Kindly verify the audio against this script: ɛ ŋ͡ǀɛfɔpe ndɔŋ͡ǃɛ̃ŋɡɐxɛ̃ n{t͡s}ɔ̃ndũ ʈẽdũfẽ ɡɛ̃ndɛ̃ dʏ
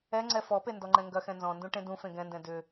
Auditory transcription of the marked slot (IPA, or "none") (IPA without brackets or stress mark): z